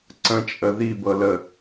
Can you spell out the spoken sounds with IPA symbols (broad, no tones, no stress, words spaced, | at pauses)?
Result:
ǀə̃t͡ʃʼə ðibɤlə